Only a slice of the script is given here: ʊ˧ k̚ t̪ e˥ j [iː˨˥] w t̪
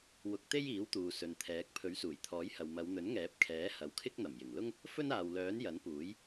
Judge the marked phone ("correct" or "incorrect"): correct